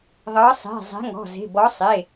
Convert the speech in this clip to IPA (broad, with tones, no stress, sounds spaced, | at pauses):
ðˤ ɤ˨˦ sˤ e̤˩˧˩ zˤ e̤˨˦ ŋ ɔ̤˩˧˩ z e̤˩˧˩ b ɔ˨˦ sˤ e˩˧˩